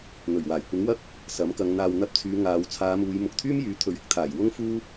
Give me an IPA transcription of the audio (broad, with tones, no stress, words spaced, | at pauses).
n̪ɵ˨˩ɥwaː˨˩j kʷɪ˨˥ŋwɐ˥k̚ | sɐ˨˥mkɐ˨˧ŋ n̪aː˨wn̪ɐ˧p̚ t͡sʰyː˨˧ ŋaː˨˧w t͡sʰaː˨˧muː˨˧j mʊ˨k̚t̪ʰyː˥mjyː˨˥ t̪ʰɵ˨ɥɪ˥k̚t̪ʰaː˨˩j wʊ˥ŋfuː˥